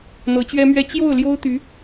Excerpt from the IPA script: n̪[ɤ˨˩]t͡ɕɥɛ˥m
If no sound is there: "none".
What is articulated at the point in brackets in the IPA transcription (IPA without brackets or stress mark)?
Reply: ɤ˧˥